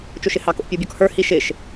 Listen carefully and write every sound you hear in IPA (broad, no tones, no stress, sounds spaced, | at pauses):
t͡ʃ o ʃ ɪ h ɑ k o̰ pʲ u bʲ ɔ k h ə˞ h i ʃ ɪ ʃ